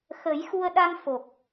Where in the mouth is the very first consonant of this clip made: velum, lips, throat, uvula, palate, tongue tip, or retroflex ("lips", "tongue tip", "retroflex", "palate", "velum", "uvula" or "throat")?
velum